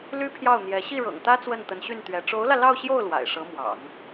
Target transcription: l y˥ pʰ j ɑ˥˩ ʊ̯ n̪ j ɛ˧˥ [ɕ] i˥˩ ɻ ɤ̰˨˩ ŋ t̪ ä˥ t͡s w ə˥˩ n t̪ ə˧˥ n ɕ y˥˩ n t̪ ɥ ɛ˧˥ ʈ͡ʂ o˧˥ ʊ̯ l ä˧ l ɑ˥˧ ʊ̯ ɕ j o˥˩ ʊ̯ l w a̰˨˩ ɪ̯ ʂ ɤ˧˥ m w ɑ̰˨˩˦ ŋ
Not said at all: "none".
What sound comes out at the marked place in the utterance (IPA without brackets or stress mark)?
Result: ɕ